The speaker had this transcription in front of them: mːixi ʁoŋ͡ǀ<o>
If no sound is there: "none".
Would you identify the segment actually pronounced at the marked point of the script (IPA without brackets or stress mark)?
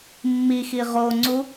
u